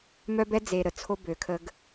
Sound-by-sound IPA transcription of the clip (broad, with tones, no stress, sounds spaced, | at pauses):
m œ˦ b ɛ˦ d͡z e˨ ɾ ə˨ t͡sʰ o˦ b ø˨ kʰ ə˦ ɡ